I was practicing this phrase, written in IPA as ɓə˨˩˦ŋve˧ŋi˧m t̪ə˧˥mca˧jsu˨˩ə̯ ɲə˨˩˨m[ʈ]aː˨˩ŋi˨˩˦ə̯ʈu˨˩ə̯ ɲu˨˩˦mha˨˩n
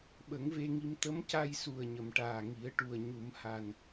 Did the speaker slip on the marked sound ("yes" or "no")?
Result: no